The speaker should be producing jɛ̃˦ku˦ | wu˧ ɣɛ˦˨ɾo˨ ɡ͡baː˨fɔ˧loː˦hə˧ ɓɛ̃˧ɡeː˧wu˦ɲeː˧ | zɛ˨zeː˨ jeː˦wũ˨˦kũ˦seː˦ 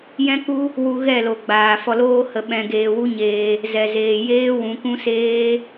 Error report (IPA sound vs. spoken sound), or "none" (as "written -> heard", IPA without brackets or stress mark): ɾ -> l